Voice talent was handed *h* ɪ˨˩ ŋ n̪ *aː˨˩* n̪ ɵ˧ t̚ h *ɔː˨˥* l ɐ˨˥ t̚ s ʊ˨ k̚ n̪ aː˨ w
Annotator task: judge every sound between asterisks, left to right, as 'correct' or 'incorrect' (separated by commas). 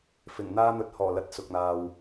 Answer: incorrect, incorrect, incorrect